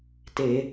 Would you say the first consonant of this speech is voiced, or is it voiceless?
voiceless